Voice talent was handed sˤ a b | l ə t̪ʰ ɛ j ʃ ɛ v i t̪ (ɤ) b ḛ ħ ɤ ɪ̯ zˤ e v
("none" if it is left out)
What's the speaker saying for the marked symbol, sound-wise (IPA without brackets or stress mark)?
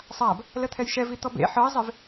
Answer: ɔ